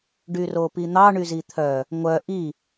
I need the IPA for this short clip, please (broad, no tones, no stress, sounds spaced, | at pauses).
ɖ y r o p i n̪ ɑ ɳ y z i t̪ʰ œ | ŋʷ œ ʔ i